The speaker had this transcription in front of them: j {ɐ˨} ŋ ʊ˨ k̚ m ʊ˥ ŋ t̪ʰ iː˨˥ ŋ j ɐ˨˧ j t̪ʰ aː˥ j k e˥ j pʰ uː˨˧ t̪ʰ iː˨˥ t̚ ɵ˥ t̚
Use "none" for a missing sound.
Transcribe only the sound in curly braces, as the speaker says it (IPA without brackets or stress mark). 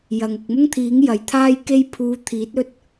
ɐ˨